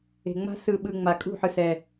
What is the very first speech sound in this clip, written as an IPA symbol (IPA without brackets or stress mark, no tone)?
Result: e̤